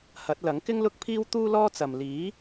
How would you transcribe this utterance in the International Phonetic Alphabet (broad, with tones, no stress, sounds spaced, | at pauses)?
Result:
h ɐ˨˥ t̚ l ɐ˨˥ ŋ k ɪ˥ ŋ l ʊ˥ k̚ pʰ iː˥ w t̪ uː˥ l ɔː˥ t͡s ɐ˨ m l iː˨˥